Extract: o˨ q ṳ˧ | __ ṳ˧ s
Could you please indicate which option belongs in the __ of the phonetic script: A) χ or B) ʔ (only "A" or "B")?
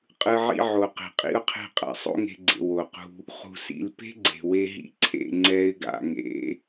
A